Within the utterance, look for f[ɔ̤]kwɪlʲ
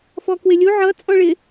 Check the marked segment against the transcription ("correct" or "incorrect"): incorrect